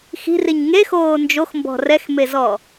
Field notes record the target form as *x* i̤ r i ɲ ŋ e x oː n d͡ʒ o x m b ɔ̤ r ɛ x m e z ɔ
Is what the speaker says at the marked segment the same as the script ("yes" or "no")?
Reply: yes